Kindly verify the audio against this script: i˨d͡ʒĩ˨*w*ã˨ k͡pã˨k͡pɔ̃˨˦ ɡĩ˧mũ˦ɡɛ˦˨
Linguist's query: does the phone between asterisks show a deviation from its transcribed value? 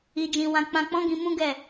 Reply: no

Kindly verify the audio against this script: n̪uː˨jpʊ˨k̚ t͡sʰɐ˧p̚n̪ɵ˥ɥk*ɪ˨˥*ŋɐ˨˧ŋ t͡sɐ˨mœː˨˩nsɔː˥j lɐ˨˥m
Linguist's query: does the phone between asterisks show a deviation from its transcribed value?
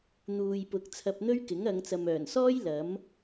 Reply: no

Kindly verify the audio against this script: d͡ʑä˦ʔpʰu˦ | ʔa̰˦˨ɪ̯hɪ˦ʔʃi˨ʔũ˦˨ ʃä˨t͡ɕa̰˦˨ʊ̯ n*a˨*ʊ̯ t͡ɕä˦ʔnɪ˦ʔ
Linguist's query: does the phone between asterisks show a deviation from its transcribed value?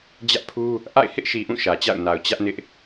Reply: no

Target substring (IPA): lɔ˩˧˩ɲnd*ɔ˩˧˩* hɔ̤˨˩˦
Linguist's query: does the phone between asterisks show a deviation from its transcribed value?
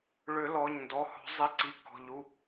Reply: no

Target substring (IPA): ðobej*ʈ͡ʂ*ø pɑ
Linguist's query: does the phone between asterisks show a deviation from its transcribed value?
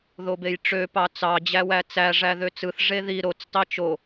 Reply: no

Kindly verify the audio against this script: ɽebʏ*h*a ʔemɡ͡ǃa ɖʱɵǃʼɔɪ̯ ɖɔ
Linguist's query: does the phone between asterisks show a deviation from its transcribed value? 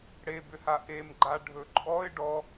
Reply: no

